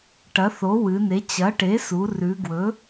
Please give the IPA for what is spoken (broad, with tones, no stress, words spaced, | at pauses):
ʈɐ˩˥θo˩˥wɨ˩˧ne˩˥ t͡ɕɐ˩˥ʈe˩˥su˩˧ rʉ˩˧ɡwɵ˩˥